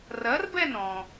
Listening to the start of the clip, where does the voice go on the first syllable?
rising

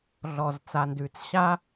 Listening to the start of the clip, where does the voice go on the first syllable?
low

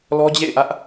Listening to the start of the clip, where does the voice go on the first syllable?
high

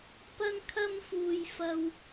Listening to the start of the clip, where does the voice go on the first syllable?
high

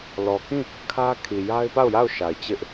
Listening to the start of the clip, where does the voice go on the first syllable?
low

